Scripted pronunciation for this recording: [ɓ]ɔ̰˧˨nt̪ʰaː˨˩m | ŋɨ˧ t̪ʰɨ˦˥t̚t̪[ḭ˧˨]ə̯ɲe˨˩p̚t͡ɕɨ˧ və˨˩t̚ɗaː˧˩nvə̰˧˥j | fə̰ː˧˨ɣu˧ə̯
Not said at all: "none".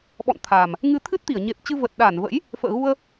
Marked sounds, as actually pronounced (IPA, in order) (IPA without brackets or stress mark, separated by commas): ɓ, i˧˩